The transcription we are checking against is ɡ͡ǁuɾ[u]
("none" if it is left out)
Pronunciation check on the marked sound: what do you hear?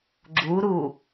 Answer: u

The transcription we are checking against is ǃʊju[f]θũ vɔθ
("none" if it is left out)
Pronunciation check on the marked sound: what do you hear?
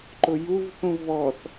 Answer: v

